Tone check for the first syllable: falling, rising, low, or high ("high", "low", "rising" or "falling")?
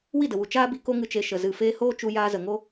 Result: falling